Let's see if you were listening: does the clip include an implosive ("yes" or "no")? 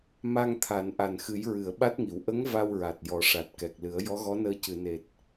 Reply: yes